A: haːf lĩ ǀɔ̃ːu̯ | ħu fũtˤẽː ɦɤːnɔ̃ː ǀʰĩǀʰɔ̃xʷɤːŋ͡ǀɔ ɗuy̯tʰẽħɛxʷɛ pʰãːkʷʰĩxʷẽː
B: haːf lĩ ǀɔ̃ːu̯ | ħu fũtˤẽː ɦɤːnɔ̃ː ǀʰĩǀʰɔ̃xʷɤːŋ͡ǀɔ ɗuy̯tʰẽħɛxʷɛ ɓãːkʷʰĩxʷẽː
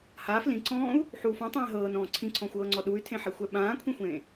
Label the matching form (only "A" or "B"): B